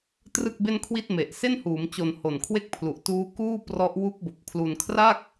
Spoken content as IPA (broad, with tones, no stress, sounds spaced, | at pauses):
t r ɯ˥˩ k̚ b e˥˩ n kʰ w i˥˩ t̚ m e˨˩ ʔ s e˥˩ n h uː˩˦ m t͡ɕ o˨˩ n h o˨˩ n kʰ w e˥˩ k̚ pʰ l u˨˩ ʔ t uː˦˥ k uː˥˩ p r ɔ˦˥ ʔ w u˦˥ k̚ b o˨˩ k̚ pʰ l u˧ n kʰ r a˥˩ k̚